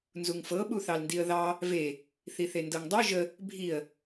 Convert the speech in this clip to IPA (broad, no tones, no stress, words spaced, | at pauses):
nzuŋfɤ ɓuθɑlndiə̯ðɑ | ve | θiθendɤŋdˤu ʒə | bʱiə̯